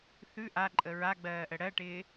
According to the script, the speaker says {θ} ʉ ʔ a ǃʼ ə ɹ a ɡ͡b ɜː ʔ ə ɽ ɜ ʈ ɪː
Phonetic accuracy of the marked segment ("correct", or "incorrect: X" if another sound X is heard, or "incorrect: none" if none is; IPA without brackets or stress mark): correct